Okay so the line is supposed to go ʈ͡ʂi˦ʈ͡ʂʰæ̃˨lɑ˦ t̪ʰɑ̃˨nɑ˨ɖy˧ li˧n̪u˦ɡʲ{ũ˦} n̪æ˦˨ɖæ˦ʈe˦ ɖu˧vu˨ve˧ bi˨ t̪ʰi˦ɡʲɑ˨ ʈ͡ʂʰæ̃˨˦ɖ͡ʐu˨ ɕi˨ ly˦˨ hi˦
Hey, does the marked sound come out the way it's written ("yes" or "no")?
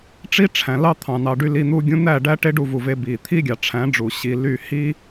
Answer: yes